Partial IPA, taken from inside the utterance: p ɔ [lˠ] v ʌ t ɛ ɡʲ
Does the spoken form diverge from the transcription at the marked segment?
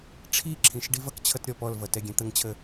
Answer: yes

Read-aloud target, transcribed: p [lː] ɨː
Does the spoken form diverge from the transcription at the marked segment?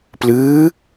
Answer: yes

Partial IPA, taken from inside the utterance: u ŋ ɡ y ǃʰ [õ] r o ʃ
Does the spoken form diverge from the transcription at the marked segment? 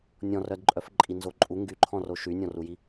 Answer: yes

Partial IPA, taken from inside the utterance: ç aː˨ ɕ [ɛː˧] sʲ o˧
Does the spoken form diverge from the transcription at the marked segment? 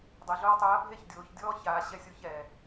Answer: yes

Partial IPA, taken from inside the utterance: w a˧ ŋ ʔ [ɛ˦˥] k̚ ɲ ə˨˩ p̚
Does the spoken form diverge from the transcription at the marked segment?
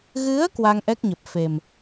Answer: no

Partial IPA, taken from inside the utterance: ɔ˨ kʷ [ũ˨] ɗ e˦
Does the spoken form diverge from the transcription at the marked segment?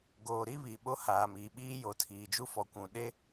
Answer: no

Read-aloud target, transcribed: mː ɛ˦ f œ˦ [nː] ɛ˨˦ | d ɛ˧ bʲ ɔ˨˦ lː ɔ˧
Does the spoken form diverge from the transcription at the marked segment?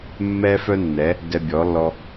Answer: no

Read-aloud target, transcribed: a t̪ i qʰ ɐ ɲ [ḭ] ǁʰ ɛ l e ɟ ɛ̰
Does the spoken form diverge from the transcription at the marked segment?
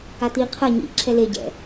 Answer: no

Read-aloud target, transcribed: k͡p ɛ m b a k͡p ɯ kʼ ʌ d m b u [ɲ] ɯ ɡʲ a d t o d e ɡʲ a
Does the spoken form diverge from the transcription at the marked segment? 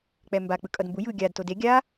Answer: yes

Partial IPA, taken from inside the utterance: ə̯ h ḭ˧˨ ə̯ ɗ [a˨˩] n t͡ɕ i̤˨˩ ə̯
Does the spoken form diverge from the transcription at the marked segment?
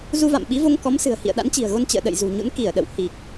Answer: yes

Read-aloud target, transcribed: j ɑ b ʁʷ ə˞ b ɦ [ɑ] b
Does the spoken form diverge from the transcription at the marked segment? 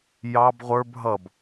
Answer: yes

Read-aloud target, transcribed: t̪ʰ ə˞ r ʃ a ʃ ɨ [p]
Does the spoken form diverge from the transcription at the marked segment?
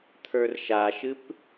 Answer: no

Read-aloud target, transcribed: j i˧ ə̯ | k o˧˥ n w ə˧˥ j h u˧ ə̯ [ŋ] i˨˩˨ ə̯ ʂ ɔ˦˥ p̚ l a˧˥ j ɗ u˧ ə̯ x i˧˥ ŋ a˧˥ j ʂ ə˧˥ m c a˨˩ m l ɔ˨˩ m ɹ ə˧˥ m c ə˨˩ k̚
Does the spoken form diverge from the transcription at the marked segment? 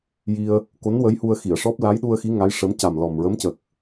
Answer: yes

